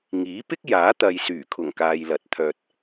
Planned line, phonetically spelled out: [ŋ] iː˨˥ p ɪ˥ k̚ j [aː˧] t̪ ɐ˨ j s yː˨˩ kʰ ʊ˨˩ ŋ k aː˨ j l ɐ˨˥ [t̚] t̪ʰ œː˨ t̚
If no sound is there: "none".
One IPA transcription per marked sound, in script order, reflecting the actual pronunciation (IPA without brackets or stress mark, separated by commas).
ŋ, aː˨˥, t̚